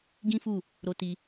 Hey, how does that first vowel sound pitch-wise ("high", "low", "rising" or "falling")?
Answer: high